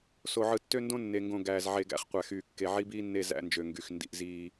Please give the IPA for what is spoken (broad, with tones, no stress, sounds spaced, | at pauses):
s o˨ ʕ ɯ˨ tː ø˦ n d õ˦ nː e˨ ŋ ɡ õ˨ ɡ æː˨ z ʕ e˨ ɡ æ̰˦ χ qʷ æ˨ x yː˨ kː e˨ ʕ i˦ b iː˦ nː e˦˨ z æ̰˦ n d͡ʒ ø˨ ŋ ɡ y˨ x n d ḭ˦ ʔ z iː˦